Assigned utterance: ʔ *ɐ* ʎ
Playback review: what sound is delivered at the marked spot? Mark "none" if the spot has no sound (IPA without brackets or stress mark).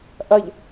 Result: ɐ